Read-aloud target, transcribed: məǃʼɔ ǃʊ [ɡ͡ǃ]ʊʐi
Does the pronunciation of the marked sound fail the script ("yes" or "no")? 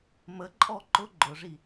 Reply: no